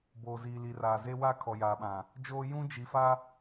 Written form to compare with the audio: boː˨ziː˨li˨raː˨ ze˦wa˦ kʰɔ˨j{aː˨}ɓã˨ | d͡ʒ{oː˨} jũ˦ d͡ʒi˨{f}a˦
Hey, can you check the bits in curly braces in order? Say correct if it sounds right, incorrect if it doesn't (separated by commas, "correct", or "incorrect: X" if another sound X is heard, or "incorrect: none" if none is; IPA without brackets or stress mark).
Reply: correct, incorrect: oː˦, correct